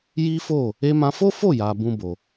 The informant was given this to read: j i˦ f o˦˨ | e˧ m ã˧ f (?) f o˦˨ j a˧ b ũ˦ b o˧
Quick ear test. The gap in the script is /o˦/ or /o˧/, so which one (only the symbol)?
o˦